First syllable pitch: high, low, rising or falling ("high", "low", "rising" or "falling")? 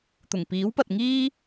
low